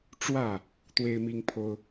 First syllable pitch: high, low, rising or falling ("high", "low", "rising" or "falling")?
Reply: falling